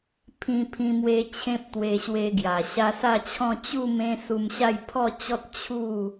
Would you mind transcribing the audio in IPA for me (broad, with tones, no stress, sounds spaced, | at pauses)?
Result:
pʰ ĩ˧ pʰ ĩ˧ m w e˧ t͡ɕʰ ẽ˦ p̚ t̪ w e˧ ɕ w e˧ ɡ j a˨˩ ɕ a˧ s a˥˧ t͡ɕʰ ɔ̃˥˧ t͡ɕ u˥˧ m ẽ˧ s u˧ m ɕ a˥˧ j pʰ ɔ˥˧ t͡ɕ ɔ˦ t̚ t͡ɕʰ u˥˧